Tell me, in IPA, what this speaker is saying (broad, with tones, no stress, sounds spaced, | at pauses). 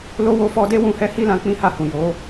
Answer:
l o˦ w o˦ f ɔ˧ d e˦ w ũ˧ h ɛ˦ h i˦ l ã˧ k͡p ĩ˦ h a˦˨ h ũ˨ j o˨˦